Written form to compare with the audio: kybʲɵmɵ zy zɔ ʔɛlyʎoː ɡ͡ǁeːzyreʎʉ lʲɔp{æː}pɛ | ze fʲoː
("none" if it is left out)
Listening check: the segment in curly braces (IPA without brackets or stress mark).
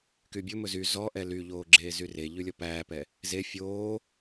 æː